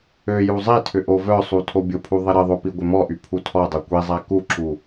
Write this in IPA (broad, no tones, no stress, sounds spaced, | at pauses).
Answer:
ø j u zˤ i tʰ ʏ ʔ o v œ sˤ u tʰ o bʲ ʊ pʰ u ðˤ ɪ ɾ ɪ ðˤ o p i ɡʷ ɪ m ɔ ʔ y pʰ u tʰ ɔ dˤ o kʷ i zˤ a k u ǁ u